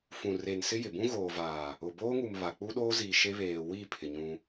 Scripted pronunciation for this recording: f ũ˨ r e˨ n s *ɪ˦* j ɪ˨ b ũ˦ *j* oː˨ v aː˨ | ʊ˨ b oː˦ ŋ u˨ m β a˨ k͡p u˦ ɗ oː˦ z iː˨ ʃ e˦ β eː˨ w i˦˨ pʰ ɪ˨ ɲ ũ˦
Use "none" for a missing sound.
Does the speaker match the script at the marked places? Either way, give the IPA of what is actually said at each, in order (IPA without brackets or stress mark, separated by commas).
ɪ˦, ɣ